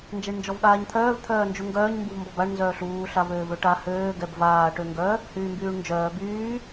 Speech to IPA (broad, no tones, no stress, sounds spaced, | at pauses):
n d͡ʒ ɛ ɳ n d͡ʒ ɔ v ɠ aː ɲ t̪ʰ œː v t̪ʰ œː n d͡ʒ u ŋ ɡ œː ɲ m b u v m b ɔ b a ɳ n z œː ɬ uː ɬ a v øː v ø ʈ a h øː ɡ ɛ b v aː ʈ ø ŋ ɡ œ | h yː m b yː ɳ n d͡ʒ œː b yː